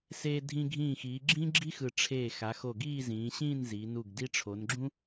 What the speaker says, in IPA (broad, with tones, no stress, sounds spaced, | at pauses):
s eː˧ dʱ ĩ˧ ɡʱ ĩː˧˩ x iː˩˧ ɡ͡ǁ ĩː˥ ɡ͡ǁ i˥ x ɯ˧˩ ʈ͡ʂʰ eː˧˩ x a˩˧ x o˧˩ ɡ iː˥˧ z ĩː˩˧ ɕ ĩː˥˧ n z i˩˧ n u˧˩ ɡ d i˧ ʈ͡ʂʰ o˩˧ n ɡ͡ǁ ũ˥